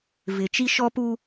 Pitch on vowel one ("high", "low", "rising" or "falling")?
low